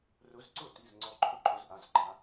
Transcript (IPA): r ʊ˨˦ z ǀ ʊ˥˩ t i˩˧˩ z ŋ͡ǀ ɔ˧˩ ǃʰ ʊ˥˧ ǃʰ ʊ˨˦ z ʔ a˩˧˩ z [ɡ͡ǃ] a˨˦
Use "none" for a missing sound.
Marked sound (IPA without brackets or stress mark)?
ɡ͡ǃ